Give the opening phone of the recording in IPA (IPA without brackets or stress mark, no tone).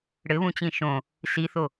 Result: ɽ